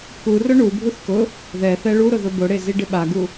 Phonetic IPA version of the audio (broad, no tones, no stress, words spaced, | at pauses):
kurʊ ɳubʱuθ kʊ | ðɛθɛ ɭuɾʊ ðʊbʊɽe ziɖɪɓaɡu